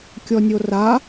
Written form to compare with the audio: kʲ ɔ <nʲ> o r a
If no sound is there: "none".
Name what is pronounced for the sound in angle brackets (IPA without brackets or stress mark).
nʲ